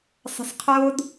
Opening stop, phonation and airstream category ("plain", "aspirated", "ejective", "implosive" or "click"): aspirated